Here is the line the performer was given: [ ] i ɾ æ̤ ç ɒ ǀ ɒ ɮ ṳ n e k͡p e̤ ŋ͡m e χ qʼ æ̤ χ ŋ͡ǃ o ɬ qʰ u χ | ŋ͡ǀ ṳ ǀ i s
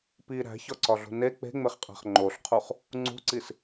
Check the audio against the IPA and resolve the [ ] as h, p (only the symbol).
p